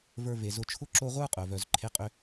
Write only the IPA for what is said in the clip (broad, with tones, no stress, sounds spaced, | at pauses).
v ə˞˦ v e˨ z ʊ˦ t͡ʃʰ ʊ˥ ǁ o˦ ʁʷ ə˞˥ qʼ œ˩ v œ˨ z ǃʰ e˦ qʼ ʏ˥